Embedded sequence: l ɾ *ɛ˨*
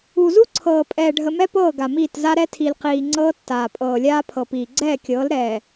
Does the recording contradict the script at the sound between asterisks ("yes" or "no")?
yes